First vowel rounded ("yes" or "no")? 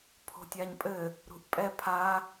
yes